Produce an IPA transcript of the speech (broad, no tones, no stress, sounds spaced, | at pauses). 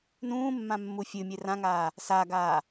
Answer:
n ũː mː ã mː u fʲ ɨ mʲ e r ã ŋ aː | s a ɡ aː